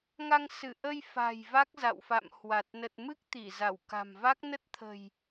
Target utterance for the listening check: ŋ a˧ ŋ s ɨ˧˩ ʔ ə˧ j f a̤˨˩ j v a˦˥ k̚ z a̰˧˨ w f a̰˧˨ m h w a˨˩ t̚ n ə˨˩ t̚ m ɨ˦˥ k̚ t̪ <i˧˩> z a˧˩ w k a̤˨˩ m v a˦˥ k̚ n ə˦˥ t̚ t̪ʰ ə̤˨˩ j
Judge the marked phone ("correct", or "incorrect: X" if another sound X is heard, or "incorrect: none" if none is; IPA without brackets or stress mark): correct